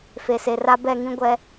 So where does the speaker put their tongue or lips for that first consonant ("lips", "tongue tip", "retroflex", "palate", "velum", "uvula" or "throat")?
lips